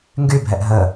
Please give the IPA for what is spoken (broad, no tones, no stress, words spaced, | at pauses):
ŋɡybʱɛʔ ɦə